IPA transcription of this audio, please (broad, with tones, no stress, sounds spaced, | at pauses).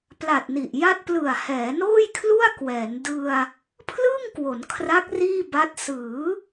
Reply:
p l a˨˩ t̚ n i˨˩ ʔ j a˥˩ t̚ p l ɯ˨˩ a̯ h ɛː˩˦ n oː˥˩ j kʰ l u˥˩ a̯ k w ɛː˩˦ n d ɯ˧ a̯ | pʰ l ɯː˥˩ ŋ k w o˩˦ n kʰ r a˦˥ k̚ r iː˥˩ b a˦˥ t̚ s ɯː˩˦